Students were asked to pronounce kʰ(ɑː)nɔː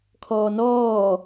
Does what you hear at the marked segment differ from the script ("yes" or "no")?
yes